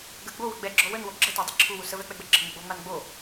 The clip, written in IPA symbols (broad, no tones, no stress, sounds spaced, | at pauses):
ɡ ə ɡ͡b o w ə ɡ͡b ɛ ɡ͡ǁ ɔ w ə n w o ɡ͡ǁ ə t a dˤ ə ǁʰ u w u s ə v ɛ k͡p ɛ ɡ͡b ə ɡ͡ǁ ə ŋ͡m ə ɡ͡b o ŋ͡m a n ɡ͡b o